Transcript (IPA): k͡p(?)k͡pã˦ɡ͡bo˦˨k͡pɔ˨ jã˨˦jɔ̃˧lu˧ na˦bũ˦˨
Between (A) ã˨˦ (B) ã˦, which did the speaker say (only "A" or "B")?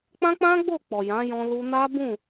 B